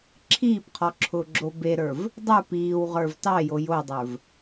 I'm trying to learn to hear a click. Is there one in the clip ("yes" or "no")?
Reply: yes